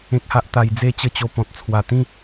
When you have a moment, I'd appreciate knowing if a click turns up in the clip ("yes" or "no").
no